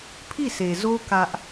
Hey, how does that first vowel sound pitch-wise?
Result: falling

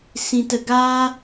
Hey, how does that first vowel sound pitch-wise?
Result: low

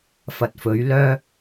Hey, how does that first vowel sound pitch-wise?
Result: low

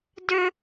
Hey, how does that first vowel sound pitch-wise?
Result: high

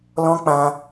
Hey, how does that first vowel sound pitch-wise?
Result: high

